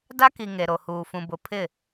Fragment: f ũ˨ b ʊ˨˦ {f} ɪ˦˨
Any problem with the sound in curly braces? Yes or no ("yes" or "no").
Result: yes